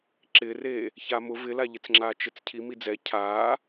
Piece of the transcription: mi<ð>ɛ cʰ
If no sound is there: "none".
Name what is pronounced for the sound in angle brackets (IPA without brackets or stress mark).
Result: d͡z